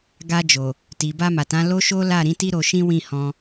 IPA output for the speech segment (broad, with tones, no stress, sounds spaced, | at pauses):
ɡ a˧ d͡ʒ o˨ | t i˨ b a˧ m a˨ t ã˨˦ l o˦ ʃ o˦ l a˦˨ ɾ ĩ˨˦ t i˦ ɾ o˧ ʃ ĩ˦ w ĩ˦˨ h ɔ̃˧